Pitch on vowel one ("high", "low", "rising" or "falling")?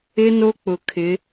high